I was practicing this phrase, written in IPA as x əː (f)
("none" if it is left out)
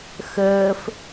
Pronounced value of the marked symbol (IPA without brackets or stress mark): f